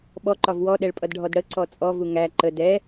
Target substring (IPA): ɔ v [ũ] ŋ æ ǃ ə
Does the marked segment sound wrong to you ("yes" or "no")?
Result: yes